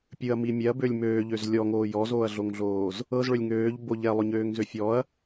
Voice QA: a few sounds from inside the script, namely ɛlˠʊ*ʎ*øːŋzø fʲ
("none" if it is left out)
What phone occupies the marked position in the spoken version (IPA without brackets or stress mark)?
ɲ